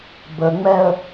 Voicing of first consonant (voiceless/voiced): voiced